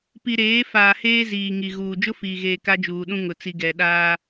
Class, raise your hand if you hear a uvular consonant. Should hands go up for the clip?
no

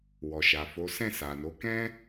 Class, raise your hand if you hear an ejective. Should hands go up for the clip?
no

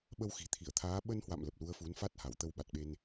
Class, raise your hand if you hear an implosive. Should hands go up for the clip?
yes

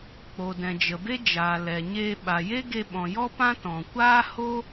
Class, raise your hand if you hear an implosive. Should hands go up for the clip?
yes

